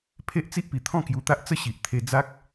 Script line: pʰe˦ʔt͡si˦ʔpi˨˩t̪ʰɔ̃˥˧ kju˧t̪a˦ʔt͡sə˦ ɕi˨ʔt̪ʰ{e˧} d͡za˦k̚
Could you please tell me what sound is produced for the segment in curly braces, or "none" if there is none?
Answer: e˧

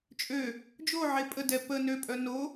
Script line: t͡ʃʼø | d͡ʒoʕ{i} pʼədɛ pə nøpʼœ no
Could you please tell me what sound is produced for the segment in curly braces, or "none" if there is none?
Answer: e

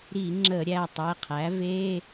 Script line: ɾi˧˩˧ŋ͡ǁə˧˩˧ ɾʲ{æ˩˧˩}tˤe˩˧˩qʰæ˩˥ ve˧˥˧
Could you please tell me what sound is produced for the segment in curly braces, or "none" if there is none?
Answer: æ˩˧˩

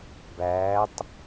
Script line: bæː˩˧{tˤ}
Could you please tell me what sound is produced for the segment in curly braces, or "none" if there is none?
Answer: tˤ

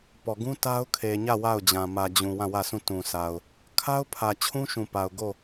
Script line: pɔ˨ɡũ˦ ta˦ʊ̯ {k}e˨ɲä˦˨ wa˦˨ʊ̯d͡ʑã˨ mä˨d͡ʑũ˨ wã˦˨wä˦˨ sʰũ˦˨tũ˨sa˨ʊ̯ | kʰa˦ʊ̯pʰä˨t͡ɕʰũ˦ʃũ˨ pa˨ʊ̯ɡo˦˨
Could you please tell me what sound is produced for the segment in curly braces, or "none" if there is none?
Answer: kʰ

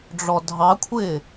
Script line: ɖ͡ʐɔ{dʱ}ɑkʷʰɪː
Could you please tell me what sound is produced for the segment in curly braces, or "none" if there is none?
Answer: dʱ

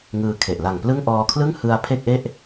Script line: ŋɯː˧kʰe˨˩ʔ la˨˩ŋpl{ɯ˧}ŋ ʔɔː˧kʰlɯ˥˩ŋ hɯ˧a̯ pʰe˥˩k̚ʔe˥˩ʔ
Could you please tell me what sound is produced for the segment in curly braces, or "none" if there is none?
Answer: ɯ˥˩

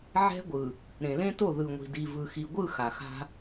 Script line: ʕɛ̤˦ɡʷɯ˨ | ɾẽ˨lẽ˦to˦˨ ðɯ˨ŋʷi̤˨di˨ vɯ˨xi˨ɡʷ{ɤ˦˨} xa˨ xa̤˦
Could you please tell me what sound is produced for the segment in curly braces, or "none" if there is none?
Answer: ɯ˦˨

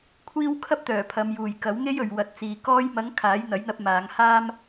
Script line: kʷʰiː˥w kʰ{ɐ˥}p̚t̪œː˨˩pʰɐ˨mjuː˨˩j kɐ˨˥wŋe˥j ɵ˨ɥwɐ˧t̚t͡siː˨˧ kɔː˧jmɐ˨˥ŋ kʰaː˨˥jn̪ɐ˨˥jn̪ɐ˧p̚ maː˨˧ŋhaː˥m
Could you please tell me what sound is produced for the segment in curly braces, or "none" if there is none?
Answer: ɐ˥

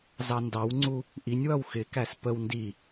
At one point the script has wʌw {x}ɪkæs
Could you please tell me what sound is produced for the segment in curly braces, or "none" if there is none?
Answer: x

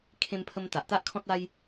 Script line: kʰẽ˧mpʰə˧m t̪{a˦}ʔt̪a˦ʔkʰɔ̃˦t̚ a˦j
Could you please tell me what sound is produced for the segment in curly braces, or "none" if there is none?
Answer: a˨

